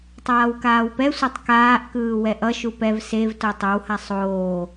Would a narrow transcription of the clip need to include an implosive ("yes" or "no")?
no